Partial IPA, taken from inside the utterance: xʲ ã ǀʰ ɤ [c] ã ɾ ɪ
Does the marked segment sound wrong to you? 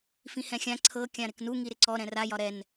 yes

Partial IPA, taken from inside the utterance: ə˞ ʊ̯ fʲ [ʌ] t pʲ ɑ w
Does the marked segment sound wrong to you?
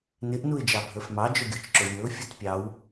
no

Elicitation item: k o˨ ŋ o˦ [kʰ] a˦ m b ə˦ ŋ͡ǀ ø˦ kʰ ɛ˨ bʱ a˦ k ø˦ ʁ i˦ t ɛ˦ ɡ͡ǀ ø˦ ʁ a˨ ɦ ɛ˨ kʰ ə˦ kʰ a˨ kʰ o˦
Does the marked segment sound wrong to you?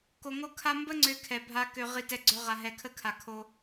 no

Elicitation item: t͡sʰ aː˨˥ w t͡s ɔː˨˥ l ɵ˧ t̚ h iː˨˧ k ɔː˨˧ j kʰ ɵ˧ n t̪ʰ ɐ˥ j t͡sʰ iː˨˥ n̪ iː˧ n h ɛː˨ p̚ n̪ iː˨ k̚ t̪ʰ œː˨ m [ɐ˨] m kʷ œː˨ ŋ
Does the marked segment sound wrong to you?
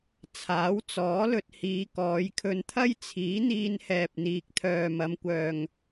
yes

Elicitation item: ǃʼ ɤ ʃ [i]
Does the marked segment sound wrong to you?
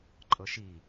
no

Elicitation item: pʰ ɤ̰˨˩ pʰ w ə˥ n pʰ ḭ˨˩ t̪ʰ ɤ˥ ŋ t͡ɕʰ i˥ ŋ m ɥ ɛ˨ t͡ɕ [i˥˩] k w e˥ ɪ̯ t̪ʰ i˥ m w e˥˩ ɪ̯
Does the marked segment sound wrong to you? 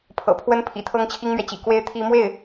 yes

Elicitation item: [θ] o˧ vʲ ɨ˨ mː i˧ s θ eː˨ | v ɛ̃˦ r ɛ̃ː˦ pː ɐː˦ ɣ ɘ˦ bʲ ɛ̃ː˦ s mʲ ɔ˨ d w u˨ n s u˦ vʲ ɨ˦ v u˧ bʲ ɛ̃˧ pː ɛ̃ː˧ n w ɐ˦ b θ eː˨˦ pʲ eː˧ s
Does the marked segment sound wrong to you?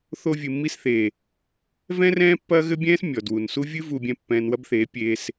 no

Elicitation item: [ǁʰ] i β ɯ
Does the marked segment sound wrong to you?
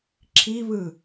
no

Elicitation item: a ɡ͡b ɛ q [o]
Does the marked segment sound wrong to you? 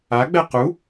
yes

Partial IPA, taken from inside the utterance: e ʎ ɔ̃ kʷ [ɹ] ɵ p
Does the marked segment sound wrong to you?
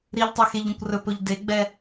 yes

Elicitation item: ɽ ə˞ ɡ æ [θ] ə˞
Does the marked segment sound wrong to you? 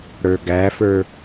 yes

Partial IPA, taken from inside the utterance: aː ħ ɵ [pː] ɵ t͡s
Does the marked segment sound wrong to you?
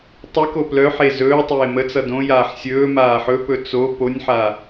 yes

